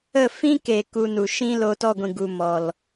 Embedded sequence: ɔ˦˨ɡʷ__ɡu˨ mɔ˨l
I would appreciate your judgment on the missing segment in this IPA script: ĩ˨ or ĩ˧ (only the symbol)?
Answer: ĩ˨